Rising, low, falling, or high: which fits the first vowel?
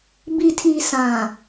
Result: low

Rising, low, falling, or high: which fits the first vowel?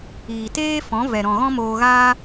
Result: low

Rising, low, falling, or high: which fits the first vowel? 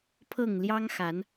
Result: falling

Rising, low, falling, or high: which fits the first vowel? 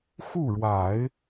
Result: falling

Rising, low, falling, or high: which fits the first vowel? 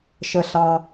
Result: high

